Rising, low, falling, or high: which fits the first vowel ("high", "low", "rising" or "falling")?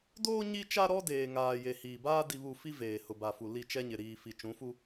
high